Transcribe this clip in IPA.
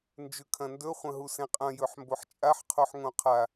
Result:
nd͡ʒʉkʰɐ̃ndɵ χʷɐ̃ɦusẽqʼɐ̃ jɵħmboħt͡ʃʼaħ qʰoħŋõqʰa

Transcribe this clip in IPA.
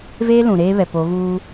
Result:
veː˦ lũ˨ ɾeː˦βɛ˨ po˨˦ɣuː˦

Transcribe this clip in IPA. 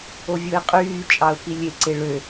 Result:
ovʲoɪ̯qʼyːt͡ʃʼɑʊ̯ pilʲeǀe ɭø

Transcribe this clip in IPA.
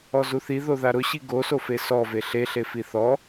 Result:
ɔzuθi ðoðaɾʊɕi ɡosofe sɔve ɬeɬe fiθɔ

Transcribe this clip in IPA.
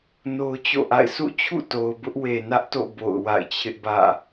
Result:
no˦ʊ̯t͡ɕo̰˦˨ʔa̰˦˨ɪ̯ sʰṵ˦˨t͡ɕʰṵ˦˨to˨ʊ̯ bʊ˦ʔwe˨nä˦ʔto̰˦˨ bo̰˦˨ʊ̯ wa̰˦˨ɪ̯t͡ɕʰɪ˦ʔbä̰˦˨

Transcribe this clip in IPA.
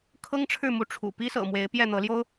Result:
kʰɤ˥ŋʈ͡ʂʰɻ̩˥˩ mu˧˥ʈ͡ʂʰṵ˨˩ pi˥sɤ̰˨˩ mwe˧˥ɪ̯pjɛ˥˩n̪ɤ˧˥ljo˥ʊ̯

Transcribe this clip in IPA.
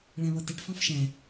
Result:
ɭæ̃βʌtɛʈ fɑ̃fʃæ̃

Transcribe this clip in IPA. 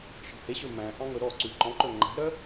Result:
ʃɔ̤heɕɵ mæ̃ ʔɑ̃ŋɵɾɔǀʉ ǃɔ̃ǃɵ ŋ͡ǃæ̤ɾœ

